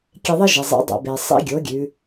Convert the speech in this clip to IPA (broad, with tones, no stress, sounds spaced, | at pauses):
kʲ e˧ ðˤ ɪ˥ ʒ e˩ zˤ ḭ˩˧ dˤ ḛ˩ b e˩ sˤ ḭ˧ ɡʲ o˩˧ ɡʲ ʉ˩˧